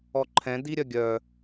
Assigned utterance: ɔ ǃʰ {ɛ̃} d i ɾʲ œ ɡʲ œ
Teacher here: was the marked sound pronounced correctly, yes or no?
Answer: yes